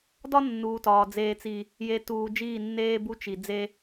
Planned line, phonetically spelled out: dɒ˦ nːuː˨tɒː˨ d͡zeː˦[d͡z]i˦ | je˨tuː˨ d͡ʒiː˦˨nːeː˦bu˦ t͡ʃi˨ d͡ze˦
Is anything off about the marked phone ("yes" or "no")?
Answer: yes